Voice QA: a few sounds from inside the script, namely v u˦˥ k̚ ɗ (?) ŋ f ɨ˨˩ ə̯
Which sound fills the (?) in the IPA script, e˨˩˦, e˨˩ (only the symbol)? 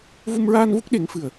e˨˩˦